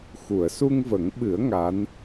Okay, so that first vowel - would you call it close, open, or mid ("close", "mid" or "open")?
close